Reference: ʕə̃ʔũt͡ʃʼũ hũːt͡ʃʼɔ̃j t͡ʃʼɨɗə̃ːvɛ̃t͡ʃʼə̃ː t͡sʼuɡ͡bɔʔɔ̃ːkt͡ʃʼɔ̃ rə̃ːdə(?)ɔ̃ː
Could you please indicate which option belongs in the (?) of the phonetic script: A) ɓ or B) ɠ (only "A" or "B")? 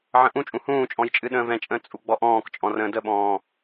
A